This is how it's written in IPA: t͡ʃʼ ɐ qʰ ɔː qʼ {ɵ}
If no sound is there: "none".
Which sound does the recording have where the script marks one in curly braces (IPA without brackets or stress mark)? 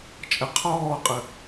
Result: ə